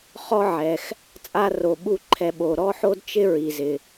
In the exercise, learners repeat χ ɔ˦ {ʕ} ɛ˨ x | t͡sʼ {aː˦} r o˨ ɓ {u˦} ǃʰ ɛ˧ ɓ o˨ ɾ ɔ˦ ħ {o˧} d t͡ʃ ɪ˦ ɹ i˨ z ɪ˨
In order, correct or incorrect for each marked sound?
correct, incorrect: a˦, correct, incorrect: o˦

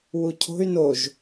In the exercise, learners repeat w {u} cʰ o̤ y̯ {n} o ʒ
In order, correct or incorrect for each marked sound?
correct, correct

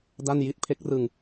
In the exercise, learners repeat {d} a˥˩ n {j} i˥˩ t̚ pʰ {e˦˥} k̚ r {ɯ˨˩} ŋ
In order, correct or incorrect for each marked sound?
correct, correct, correct, incorrect: ɯ˧

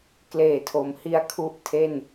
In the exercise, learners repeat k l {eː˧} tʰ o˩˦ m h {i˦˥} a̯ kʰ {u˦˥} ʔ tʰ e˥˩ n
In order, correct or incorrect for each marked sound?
incorrect: eː˨˩, incorrect: i˧, correct

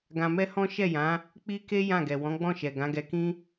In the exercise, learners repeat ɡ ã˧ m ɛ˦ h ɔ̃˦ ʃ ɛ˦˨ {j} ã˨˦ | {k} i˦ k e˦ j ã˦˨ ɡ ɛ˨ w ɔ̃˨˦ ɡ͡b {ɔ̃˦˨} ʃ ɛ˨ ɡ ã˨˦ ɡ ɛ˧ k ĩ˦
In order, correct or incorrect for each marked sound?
correct, incorrect: k͡p, correct

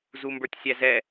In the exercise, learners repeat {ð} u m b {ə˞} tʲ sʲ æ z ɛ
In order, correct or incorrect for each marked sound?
incorrect: z, correct

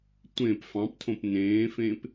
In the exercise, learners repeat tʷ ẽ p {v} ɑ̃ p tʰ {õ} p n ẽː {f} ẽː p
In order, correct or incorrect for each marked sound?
incorrect: f, correct, correct

